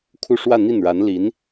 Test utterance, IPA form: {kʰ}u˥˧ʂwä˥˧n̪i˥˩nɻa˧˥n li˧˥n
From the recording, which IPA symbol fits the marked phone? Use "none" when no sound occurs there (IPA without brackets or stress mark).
kʰ